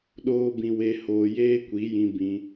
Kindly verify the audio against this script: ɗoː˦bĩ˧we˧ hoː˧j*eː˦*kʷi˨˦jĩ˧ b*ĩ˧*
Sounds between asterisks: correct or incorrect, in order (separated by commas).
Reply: correct, correct